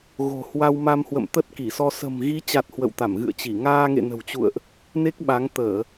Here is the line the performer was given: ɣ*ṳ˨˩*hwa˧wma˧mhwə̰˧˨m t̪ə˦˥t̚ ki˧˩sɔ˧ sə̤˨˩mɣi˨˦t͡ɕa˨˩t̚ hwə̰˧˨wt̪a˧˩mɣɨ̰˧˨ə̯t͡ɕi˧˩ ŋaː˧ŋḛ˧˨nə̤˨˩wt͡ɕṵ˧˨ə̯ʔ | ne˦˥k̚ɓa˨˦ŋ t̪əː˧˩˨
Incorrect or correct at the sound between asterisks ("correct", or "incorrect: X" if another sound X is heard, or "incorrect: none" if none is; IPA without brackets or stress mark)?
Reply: incorrect: o̤˨˩